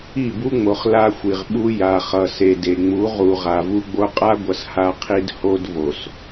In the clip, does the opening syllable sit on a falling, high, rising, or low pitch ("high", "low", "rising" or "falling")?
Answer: falling